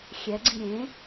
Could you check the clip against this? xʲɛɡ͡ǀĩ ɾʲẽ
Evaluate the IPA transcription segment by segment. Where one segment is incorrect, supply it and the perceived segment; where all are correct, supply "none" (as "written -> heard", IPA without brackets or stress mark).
none